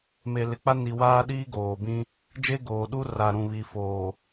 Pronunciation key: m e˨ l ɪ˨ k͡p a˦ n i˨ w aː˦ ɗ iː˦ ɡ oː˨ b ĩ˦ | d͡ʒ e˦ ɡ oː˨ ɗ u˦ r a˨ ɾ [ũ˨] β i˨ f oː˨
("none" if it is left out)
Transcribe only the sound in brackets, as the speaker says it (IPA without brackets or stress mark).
ũ˨